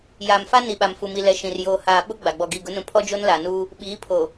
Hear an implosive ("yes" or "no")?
yes